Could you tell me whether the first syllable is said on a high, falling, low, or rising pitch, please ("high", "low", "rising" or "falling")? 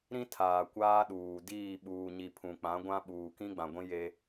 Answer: high